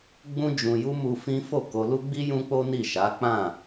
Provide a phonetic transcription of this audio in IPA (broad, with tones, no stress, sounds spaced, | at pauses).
ɡ͡b ũ˦ d͡ʒ ũ˧ j u˦ m u˧ f ĩ˦ f o˦˨ k o˧ l u˦ ɡ͡b i˦ j ũ˦ k͡p o˦ n i˦˨ ʃ a˨˦ k͡p ã˦˨